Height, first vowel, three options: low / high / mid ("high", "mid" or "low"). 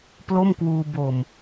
mid